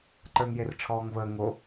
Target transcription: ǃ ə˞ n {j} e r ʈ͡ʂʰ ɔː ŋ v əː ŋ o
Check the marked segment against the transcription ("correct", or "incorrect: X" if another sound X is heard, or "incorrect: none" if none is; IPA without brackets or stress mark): correct